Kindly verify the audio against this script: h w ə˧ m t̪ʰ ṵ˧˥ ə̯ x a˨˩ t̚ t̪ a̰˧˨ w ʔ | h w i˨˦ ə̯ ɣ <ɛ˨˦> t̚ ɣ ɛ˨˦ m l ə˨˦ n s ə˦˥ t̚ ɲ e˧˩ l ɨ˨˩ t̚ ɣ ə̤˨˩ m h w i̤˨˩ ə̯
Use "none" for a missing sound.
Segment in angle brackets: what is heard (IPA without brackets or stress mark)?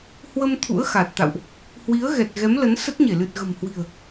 ɛ˨˩